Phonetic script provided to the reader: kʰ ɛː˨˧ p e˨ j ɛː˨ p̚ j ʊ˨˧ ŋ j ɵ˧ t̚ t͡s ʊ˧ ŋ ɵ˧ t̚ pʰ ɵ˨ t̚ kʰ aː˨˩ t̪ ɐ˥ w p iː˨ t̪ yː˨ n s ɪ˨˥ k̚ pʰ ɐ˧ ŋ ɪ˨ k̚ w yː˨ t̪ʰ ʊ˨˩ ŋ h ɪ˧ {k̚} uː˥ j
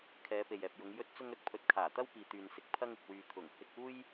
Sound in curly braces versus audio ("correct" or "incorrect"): correct